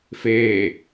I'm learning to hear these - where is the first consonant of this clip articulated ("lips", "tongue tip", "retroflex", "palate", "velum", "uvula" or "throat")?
lips